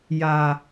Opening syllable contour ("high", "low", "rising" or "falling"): low